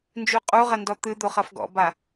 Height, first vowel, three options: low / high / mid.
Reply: high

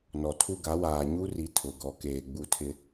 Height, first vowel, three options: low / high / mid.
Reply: mid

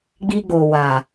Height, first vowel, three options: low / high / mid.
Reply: high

